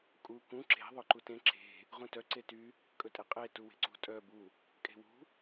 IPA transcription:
kʼ u k ũ ǁ e̤ ðˤ ɵ ǃ u t ẽ ǁ e̤ | ʁ ũ t œ ǀ e t y | kʼ ɵ tʼ e qʼ e t u w e̤ ǀ ṳ tʼ œ b u | kʼ e̤ w ṳ

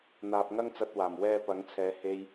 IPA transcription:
n̪ aː˧ p̚ ŋ ɐ˥ ŋ t͡s ɐ˧ t̚ w aː˨˩ m w ɛː˧ p ɐ˨˥ ŋ t͡sʰ ɛː˨˧ h e˧ j

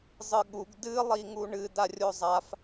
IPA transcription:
zˤ ɨ ɠ u ɡ d ɨ lˠ i ŋ u ɳ ɨ d a rʲ o zˤ a f

